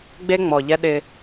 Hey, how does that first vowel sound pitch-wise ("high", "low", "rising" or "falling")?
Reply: high